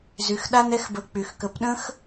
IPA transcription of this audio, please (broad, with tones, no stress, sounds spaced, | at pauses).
z y˧ x ɗ a˦ n ɛ˦ x b ə˧ k͡p y˨ x k ə˨˦ p ɗ ə̃˦ x